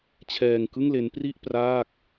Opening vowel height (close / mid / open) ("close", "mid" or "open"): mid